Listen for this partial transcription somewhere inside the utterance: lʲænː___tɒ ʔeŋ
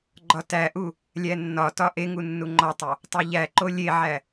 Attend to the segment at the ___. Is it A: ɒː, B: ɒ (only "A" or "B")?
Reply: B